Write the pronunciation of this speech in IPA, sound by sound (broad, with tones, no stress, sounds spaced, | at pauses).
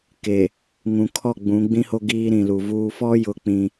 k e˨ | ŋ ũ˨ kʰ ɔ˦˨ ɡ͡b ũ˨˦ ɡ͡b ĩ˦ h o˦ ɡ iː˦ ɾ ĩ˨ l u˨ v uː˦ f ɔ˦ j ʊ˨ k͡p ĩ˦